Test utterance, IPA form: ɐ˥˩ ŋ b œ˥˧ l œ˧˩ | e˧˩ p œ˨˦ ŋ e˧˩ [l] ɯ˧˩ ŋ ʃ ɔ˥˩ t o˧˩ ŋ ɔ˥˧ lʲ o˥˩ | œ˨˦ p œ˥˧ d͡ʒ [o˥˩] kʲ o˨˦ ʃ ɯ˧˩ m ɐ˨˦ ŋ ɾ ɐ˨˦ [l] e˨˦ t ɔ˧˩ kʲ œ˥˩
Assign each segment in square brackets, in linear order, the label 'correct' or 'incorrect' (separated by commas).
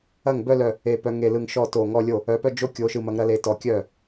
correct, incorrect, correct